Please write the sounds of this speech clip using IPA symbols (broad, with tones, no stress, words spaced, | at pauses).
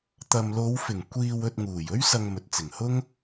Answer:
t̪ɐ˨mlo˨˧wfɪ˨˩ŋ kʷiː˧wɵ˧t̚ŋuː˨˩j ɵ˥ɥ sɐ˧ŋmɵ˨t̚t͡sɪ˨˩ŋhʊ˥ŋ